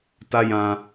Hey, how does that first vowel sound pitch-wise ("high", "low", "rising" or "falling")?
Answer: high